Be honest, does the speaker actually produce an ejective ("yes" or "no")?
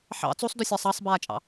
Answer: yes